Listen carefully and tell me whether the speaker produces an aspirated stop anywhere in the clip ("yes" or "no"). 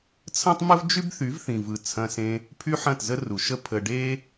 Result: yes